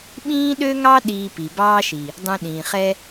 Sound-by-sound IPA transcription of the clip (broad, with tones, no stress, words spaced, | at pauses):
ɓĩː˦ɗø˦ŋɑ˦ ɗiː˧pi˨ bɑː˦ʃi˨ | dˤũ˧ɗĩː˨χɛ˦